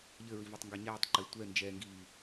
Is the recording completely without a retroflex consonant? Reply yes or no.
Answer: yes